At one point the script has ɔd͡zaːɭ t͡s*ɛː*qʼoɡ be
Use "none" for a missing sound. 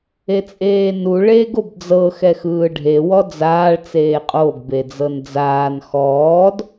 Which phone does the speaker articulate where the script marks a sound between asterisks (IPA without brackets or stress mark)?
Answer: eː